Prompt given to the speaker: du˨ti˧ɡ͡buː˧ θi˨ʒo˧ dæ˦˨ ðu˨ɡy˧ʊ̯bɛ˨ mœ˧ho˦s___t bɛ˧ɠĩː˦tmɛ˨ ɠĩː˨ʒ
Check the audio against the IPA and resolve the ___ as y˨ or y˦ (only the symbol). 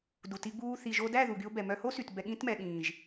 y˨